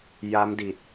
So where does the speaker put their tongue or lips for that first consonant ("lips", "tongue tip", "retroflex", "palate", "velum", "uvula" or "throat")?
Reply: palate